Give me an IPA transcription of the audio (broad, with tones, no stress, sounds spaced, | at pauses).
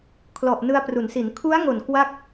kʰ l ɔ˨˩ ʔ n ɯ˧ a̯ p r u˩˦ n s i˩˦ n kʰ u˦˥ a̯ ŋ o˨˩ n k w a˥˩ k̚